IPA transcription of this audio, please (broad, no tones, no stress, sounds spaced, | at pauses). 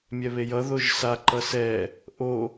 mʲ ɛ β e j ʌ ð o ʒ s a ǃ ʌ s ɛ | ʔ o